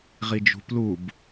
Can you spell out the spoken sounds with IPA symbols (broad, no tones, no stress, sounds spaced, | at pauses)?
ʁ i d͡ʒ ṳ p l u b